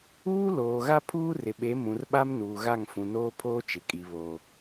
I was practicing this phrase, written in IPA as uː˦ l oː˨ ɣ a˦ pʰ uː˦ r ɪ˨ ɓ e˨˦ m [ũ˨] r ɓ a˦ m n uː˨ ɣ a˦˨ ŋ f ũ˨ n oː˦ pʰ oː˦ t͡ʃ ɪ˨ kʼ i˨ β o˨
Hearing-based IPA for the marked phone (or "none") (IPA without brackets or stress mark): ũ˨